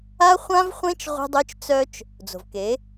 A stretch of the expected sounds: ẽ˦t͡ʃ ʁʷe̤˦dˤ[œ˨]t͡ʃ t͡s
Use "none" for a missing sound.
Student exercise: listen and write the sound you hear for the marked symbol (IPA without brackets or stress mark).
œ˦